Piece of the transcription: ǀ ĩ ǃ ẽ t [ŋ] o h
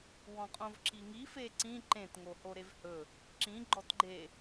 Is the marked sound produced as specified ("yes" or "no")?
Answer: yes